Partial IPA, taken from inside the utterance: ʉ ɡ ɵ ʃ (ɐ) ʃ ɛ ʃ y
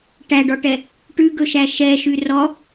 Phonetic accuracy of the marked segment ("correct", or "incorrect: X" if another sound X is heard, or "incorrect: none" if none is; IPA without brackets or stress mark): incorrect: æ